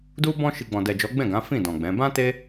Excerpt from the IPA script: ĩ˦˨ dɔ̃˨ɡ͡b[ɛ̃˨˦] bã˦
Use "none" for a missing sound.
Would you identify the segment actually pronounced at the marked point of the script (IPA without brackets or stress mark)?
ɛ̃˨˦